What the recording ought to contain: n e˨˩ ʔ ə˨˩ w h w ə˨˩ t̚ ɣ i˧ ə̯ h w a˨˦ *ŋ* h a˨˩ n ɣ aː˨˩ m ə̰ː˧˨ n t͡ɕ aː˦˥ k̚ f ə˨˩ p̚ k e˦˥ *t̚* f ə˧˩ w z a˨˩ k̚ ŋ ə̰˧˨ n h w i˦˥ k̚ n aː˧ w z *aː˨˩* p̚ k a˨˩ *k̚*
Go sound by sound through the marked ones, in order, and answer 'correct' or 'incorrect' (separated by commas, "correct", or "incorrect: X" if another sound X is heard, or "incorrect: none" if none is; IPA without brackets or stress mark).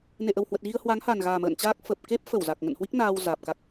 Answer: correct, incorrect: p̚, correct, correct